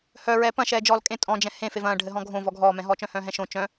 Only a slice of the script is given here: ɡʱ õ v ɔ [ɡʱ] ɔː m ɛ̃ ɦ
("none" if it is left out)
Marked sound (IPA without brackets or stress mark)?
ɡʱ